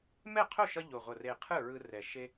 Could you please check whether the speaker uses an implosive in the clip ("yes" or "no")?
no